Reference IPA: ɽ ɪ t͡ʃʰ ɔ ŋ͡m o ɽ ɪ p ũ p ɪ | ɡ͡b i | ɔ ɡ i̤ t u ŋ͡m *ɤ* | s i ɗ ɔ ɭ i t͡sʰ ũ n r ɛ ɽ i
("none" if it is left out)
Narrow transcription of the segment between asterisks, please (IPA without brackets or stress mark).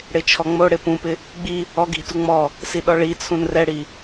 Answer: ɔ